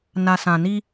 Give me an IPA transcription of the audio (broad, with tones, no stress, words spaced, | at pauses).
na˨sã˨ni˦